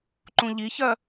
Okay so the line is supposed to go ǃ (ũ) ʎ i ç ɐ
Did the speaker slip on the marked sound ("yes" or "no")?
no